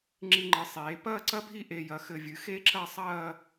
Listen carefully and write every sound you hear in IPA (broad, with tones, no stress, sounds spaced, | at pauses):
ŋ͡ǁ i˧ ŋ͡ǃ ɨ˩˧ sˤ eː˩˧ p ɐː˥˧ ǀ ɐ˥ bʱ i˥˧ ʔ e˧ j ɐ˧ x ɘ˧˩ vʲ ɨ˩˧ x e˥ ǁ ɐ˥˧ sˤ ɐː˥˧